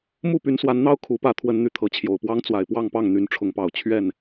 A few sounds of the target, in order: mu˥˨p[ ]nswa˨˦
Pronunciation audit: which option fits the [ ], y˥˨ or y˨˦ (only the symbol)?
y˨˦